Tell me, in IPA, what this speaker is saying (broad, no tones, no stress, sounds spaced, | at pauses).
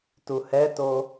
t u h ɛ t o